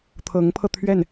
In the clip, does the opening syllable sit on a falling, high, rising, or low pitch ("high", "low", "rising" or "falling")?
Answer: rising